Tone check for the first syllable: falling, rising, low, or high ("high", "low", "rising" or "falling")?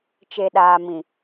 low